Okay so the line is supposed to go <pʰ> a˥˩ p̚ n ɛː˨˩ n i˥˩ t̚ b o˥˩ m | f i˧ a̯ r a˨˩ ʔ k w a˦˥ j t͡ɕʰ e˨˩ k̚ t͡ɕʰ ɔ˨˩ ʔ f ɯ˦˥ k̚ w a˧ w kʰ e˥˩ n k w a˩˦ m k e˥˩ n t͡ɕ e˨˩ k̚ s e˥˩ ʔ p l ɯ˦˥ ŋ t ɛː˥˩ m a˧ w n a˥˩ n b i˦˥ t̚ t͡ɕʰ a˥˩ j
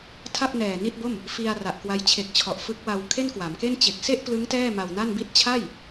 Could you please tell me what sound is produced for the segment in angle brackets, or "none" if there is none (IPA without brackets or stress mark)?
tʰ